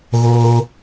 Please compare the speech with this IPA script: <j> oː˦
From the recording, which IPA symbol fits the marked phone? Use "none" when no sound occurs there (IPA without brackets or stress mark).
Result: ɣ